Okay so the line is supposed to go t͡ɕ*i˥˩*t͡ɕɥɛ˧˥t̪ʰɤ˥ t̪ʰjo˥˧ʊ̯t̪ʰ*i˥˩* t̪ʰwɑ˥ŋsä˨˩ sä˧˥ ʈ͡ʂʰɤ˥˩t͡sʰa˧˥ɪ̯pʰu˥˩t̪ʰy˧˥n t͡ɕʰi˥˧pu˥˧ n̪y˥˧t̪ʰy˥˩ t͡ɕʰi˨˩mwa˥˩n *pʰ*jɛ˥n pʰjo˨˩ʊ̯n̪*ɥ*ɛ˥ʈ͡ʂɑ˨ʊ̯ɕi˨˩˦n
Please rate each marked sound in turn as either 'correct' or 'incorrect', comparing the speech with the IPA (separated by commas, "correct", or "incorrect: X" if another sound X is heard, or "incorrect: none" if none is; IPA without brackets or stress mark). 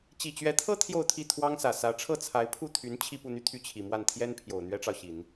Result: incorrect: i˨˩, correct, incorrect: t̪ʰ, correct